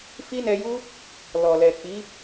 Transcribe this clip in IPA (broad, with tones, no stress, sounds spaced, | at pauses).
f i˦ n ɛ˧ j u˦ | l ɔ˨ l ɛ˨ k͡p i˨˦